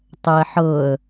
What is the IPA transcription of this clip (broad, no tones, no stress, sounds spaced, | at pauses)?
tˤ ɛ ħ ɤ ə̯